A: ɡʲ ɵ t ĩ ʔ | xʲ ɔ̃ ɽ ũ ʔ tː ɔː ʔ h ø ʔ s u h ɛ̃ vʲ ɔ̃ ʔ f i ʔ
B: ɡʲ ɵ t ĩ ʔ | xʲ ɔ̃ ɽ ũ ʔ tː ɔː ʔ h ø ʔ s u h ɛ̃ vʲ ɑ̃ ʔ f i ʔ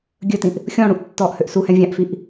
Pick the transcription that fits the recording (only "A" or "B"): B